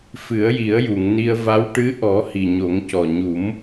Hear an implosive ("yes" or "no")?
no